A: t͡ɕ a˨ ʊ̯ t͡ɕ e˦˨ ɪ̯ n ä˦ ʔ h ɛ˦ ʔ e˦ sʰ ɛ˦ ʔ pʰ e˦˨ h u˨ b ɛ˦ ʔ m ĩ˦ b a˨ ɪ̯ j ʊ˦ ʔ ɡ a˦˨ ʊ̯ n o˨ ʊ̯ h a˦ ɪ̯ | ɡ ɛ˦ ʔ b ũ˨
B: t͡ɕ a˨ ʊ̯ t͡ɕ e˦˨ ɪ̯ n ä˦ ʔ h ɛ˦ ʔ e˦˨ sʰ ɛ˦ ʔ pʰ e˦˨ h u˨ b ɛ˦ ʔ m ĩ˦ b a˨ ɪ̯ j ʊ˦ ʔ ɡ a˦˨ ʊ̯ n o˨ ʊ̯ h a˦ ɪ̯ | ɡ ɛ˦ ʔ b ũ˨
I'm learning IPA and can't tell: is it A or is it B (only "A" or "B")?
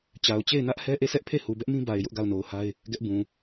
B